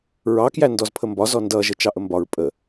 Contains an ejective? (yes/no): yes